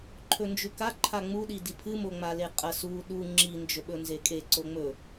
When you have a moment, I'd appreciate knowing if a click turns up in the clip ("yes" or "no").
yes